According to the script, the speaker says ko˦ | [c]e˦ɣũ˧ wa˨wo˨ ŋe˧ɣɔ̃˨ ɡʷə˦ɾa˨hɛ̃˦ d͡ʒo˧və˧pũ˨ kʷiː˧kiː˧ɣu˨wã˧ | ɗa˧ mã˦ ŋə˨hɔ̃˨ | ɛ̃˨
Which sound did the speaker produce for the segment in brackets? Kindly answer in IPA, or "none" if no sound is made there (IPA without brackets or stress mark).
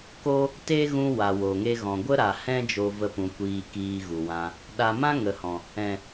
t